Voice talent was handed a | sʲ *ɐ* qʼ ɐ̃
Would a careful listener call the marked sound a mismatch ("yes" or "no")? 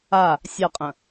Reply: no